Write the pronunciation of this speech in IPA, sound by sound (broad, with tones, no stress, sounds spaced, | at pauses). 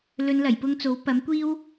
l ɵ˨˧ n l ɐ˨˩ j p ʊ˧ ŋ t͡s o˨˥ w p ɐ˨˥ m kʷ iː˥ w